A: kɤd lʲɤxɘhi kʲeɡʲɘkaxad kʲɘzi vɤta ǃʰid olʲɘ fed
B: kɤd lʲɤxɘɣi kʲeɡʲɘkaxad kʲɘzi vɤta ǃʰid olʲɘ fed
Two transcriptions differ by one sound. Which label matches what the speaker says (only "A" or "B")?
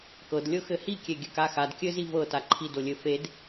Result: A